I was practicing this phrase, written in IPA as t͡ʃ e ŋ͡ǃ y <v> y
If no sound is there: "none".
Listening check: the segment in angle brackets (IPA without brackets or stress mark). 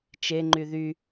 ð